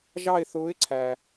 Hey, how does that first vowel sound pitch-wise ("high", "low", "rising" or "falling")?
falling